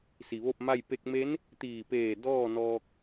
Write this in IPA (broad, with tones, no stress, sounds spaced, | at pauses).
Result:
s i˩ ʋ o˥˨ p̚ m a˥˨ j p e˧ k̚ m e˧˥ n | t̪ iː˧˩ p eː˧˩ d ɔː˥˨ n ɔː˧ k̚